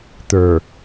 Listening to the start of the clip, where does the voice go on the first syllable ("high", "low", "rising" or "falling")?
low